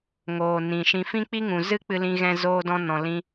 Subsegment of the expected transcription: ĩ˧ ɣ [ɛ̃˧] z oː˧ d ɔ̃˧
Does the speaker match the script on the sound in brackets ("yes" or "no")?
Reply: yes